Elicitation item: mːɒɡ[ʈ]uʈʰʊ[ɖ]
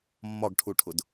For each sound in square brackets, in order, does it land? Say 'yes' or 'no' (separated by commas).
no, no